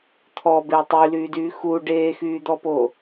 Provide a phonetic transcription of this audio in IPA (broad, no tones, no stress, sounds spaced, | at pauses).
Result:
t̪ʰ ɔ b e tˤ y l yː d yː x u ɖ eː x yː d̪ ɔ p o